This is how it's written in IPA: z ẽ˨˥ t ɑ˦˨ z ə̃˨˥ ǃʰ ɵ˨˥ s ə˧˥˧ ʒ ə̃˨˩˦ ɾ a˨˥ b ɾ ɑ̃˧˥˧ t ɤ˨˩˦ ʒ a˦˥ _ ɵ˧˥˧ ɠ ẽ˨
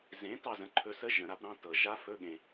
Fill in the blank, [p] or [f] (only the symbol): f